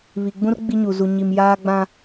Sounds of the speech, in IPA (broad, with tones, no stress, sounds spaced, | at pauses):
β i˨ ɡ͡b ũ˦ r ɡ͡b i˦ ɲ u˨ z u˨ ɲ i˨ m j aː˦ ɡ͡b ã˦